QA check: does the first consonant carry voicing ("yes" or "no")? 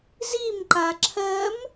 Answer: yes